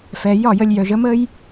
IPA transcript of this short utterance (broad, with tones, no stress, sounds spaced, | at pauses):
f ɛ˨ j ɒ˦˨ j ə˧ lʲ j œ˨ ʒ ə˦ m ə˦ j